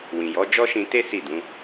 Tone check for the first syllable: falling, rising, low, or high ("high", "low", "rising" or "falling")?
low